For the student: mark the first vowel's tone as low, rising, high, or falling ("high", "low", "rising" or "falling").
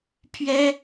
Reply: high